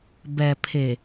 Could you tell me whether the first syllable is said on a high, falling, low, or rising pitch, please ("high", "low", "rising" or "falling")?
low